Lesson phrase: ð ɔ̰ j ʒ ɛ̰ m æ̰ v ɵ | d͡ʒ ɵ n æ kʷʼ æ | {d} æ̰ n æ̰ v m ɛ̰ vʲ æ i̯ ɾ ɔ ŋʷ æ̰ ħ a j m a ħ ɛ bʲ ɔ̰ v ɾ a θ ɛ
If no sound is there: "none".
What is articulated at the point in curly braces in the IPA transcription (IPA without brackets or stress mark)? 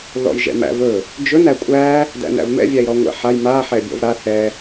d